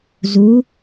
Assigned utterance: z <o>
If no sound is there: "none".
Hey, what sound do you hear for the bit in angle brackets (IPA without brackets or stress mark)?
u